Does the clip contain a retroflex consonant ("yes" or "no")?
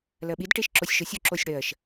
yes